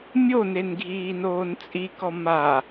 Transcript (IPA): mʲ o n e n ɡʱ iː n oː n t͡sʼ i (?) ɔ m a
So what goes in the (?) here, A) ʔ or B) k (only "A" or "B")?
B